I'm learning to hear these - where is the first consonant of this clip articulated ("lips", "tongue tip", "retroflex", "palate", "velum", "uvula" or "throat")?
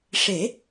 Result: retroflex